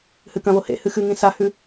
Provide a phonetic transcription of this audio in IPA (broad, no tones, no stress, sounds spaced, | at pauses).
h ɨ k ɐ̃ β o h ḛ h ɨ x ɨ ŋ ĩ s a h ʉ